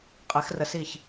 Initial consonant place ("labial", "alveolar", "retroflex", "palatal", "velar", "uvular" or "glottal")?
uvular